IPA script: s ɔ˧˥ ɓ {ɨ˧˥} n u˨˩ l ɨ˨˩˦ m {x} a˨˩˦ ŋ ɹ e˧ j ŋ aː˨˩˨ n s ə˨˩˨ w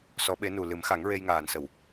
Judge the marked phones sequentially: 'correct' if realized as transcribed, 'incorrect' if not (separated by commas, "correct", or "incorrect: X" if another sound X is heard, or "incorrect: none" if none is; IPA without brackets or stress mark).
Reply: incorrect: e˧˥, correct